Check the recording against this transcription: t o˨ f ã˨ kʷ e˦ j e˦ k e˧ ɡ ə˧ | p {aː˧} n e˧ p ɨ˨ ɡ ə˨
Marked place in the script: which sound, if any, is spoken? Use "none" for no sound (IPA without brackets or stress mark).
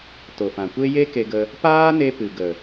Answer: aː˦